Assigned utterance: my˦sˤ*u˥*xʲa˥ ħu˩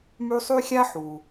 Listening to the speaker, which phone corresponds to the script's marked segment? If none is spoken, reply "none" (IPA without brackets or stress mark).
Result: y˥